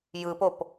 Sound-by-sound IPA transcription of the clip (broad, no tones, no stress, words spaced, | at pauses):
jɯpop